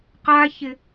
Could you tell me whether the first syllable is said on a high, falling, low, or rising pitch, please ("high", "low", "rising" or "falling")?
high